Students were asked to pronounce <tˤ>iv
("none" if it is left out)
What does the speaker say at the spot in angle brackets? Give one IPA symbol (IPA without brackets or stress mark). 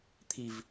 t̪ʰ